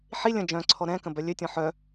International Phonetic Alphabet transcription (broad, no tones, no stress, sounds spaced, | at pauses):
ħ i lʲ ə̃ d͡ʒ œ̃ ǀʰ ɔ ɾ ɛ̃ k ə̃ b œ lʲ ø tʲ ɔ̃ ħ œ